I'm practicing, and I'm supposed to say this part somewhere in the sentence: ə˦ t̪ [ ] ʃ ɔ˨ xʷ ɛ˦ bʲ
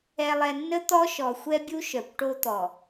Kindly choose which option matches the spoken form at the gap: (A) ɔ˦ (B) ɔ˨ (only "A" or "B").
A